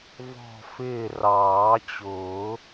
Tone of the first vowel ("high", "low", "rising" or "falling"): falling